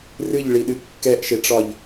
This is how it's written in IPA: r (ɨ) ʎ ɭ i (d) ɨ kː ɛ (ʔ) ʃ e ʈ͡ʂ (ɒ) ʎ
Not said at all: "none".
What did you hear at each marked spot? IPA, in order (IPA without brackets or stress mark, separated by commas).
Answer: ɨ, ɗ, ʔ, ɒ